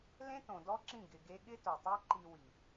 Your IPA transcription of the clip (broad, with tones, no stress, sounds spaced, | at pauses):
l ẽ˦ t õ˨ d ɔ˦ ǁ ĩ˦˨ ɡ ɪ˧ ɡ e˦ ɠ ɪ˦ t o˨ tˤ o˦ ǃ i˧ w i˨